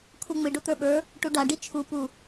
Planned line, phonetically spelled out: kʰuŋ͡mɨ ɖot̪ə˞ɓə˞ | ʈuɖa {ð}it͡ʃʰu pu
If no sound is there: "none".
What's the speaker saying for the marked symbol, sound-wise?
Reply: ɖ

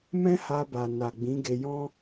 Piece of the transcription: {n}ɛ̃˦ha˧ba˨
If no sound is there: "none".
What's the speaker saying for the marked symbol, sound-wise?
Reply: m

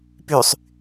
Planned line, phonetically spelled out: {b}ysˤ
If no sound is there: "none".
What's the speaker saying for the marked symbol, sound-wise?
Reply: p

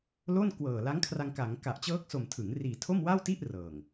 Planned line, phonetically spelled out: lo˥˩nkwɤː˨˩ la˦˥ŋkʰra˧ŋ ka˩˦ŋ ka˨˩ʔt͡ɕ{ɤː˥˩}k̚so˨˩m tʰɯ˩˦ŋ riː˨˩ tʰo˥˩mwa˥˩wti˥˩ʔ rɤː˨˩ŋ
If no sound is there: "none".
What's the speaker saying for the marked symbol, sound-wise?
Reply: ɤː˦˥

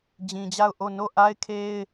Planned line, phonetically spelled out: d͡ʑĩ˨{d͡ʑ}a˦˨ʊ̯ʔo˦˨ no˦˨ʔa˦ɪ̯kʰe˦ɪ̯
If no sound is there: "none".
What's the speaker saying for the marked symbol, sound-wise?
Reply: d͡ʑ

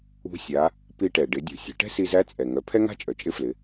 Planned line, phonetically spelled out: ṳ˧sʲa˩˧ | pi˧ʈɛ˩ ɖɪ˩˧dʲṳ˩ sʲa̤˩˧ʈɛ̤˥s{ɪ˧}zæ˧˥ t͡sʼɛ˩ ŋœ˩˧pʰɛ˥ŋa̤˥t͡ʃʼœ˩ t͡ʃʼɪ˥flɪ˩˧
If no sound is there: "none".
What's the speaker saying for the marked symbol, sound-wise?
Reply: i˧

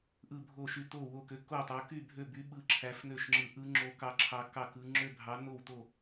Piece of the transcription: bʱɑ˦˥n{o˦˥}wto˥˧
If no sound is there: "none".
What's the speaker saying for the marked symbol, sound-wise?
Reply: o˥˧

